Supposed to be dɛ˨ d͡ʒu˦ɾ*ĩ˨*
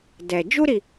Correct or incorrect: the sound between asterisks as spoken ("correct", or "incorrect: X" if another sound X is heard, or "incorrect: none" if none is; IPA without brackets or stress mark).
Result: incorrect: i˨